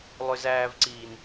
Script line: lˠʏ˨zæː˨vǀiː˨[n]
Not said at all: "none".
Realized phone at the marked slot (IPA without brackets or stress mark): n